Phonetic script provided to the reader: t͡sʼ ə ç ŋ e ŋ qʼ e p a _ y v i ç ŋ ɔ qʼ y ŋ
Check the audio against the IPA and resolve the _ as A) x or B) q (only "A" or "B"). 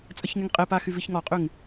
A